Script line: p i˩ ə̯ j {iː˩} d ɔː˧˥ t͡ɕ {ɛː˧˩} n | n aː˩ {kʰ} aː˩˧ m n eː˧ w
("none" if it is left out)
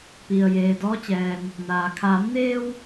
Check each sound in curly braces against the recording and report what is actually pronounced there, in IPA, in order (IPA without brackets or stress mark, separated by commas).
eː˩, ɛː˩, kʰ